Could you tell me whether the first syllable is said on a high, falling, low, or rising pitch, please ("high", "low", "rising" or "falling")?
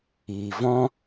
low